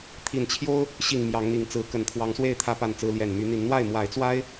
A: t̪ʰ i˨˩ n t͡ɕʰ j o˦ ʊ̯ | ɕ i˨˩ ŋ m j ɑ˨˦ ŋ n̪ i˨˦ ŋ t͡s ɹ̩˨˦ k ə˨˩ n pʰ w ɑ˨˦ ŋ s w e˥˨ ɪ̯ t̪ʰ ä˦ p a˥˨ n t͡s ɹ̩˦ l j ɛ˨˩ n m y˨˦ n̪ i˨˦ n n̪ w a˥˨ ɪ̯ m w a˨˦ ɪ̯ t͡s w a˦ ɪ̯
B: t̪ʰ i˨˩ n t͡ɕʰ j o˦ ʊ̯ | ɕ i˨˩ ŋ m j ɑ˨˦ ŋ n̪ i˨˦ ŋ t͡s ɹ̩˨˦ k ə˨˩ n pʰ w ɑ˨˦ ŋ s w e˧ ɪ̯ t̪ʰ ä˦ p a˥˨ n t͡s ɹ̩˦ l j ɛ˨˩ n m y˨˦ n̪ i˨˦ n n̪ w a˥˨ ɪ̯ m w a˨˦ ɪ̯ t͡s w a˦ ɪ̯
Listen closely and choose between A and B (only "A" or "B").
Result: A